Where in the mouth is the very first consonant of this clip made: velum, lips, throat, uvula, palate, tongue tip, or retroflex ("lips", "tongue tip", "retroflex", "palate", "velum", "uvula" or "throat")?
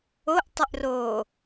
throat